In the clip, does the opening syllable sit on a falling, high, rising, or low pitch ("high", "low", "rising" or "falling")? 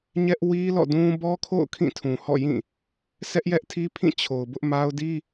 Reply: high